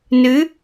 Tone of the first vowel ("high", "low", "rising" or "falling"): rising